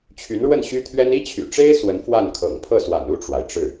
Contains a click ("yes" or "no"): no